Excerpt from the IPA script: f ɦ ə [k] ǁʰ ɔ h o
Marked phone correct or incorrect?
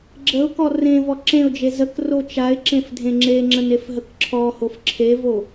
correct